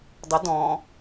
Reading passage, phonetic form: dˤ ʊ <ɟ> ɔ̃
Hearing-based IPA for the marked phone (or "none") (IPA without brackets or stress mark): d